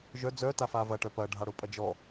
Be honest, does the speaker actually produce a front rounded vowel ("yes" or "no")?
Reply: yes